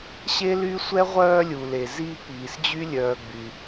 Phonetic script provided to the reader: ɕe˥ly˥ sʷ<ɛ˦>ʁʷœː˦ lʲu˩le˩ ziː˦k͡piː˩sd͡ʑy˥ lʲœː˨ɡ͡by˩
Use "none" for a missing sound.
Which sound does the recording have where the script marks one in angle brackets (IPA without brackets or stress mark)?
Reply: ɛ˥